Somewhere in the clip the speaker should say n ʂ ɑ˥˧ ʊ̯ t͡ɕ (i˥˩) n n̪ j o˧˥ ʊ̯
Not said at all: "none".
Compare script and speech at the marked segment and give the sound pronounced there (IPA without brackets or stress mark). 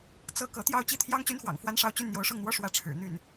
y˥˩